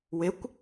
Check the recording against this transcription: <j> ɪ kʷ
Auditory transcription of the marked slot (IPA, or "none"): w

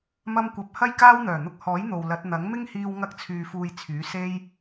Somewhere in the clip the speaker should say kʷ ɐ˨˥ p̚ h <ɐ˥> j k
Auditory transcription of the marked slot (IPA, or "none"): ɐ˥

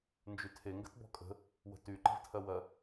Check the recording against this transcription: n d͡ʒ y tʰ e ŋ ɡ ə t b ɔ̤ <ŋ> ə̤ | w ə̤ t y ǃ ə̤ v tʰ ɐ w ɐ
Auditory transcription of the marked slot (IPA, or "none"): kʼ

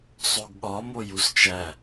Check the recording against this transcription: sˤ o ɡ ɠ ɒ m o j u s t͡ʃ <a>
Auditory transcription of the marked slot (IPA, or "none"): æ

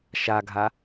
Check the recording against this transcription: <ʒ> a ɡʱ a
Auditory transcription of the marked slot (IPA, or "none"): ʃ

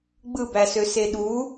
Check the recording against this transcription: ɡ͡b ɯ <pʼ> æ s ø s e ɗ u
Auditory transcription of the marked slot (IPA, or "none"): b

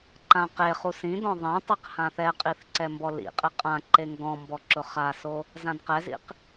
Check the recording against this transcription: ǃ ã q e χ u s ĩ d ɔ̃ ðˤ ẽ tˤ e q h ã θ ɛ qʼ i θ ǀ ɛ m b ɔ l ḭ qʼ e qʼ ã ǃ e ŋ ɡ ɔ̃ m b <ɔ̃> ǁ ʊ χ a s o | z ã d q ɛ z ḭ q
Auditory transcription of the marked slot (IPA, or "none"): ɔ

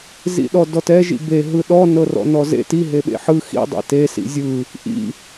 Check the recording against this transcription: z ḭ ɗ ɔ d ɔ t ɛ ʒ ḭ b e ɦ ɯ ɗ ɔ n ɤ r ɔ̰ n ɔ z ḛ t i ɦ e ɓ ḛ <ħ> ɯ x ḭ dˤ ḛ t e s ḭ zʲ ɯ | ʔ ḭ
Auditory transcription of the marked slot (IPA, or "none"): ħ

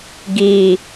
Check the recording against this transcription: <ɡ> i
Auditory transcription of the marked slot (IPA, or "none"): ɡ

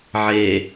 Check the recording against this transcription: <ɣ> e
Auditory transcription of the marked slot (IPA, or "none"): ʕ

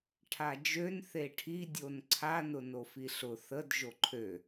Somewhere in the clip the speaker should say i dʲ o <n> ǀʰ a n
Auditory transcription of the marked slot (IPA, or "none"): n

